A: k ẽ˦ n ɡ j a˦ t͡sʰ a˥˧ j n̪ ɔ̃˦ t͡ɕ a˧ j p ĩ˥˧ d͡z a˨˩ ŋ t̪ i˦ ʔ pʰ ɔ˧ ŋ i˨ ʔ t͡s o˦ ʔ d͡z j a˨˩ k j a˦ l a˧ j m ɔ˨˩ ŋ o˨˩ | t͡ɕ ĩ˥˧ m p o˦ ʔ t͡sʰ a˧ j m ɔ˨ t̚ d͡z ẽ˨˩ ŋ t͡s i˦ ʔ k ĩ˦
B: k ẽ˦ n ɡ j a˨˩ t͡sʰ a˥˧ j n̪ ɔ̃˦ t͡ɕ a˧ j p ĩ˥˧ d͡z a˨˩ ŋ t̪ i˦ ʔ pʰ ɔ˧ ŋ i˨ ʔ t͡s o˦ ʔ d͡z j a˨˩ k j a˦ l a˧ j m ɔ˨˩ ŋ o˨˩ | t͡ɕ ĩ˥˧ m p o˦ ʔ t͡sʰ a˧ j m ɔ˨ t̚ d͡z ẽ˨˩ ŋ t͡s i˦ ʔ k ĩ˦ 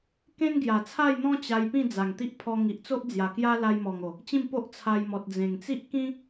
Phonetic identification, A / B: B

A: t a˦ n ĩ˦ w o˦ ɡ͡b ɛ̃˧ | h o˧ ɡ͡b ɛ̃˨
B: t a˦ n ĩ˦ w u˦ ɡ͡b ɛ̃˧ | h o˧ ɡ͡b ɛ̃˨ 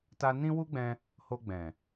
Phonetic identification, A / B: B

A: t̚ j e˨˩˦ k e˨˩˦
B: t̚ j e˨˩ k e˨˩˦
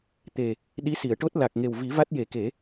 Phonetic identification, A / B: A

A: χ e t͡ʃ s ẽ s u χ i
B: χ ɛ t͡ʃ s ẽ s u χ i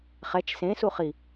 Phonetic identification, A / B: B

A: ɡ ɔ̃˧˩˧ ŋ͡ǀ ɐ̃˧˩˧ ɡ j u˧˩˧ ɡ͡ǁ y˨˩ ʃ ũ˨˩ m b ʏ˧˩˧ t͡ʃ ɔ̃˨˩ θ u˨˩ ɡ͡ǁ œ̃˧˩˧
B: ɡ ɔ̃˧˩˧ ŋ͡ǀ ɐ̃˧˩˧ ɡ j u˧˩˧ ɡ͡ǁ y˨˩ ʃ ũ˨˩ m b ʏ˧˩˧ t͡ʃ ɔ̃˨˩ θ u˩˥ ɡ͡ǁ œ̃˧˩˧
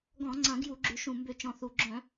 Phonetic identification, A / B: A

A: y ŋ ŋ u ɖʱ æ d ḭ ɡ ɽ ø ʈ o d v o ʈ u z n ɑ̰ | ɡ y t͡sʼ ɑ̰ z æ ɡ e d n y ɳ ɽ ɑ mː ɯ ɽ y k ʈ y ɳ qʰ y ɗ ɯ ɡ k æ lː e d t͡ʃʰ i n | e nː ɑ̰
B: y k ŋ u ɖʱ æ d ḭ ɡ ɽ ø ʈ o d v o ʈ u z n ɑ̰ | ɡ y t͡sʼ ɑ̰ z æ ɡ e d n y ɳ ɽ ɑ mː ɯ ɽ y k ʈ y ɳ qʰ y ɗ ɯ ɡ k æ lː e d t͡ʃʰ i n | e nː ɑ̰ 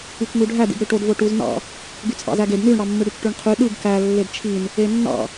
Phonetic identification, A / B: B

